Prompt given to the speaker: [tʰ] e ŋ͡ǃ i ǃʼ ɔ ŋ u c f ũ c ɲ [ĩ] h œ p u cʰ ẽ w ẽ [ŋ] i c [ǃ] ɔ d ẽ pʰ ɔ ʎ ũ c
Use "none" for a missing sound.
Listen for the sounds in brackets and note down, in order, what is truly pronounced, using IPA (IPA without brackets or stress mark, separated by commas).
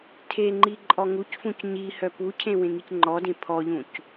tʰ, i, ŋ, ŋ͡ǃ